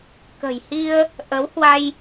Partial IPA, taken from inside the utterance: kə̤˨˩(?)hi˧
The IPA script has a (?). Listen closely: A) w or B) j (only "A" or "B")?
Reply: B